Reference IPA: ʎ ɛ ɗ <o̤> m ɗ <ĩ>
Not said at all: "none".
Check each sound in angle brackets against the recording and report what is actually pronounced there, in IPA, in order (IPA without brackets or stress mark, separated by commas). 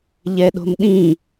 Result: o̤, ĩ